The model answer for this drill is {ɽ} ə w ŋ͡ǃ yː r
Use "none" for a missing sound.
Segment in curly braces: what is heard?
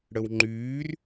ɽ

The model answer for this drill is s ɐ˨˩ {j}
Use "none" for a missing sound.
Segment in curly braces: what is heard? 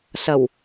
w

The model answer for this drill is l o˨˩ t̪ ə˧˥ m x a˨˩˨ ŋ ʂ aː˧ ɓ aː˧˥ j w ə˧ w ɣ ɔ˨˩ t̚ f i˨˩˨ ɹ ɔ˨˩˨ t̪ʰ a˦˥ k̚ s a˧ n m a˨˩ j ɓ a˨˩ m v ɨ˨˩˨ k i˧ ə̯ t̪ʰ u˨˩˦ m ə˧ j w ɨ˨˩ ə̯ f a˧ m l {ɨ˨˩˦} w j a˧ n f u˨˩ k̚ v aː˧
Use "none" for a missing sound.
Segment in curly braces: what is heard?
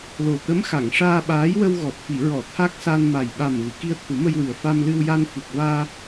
ɨ˧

